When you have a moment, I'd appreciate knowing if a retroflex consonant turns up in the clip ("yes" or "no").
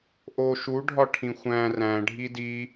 yes